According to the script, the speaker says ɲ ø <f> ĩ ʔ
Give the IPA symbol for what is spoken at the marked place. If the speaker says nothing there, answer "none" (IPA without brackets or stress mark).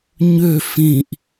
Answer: f